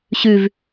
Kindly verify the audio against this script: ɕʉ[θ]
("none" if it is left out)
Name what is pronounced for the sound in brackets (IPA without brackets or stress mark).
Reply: v